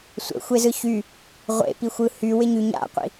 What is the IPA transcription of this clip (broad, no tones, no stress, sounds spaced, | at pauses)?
sʷ ə̰ xʷ e z ɯ ç y | ʁʷ ḛ p i xʷ ɯ h y w ɪ ɲ y ɲ a̰ qʷ ḭ